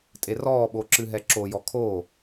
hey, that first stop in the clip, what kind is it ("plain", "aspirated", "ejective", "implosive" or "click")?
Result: ejective